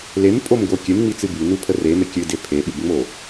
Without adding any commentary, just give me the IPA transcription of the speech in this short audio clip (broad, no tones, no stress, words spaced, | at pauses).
lempʼomɡo kʲɨmŋ͡mit͡sɨ bynupʰə reme kʲɨde pʰeɓɨbŋ͡mo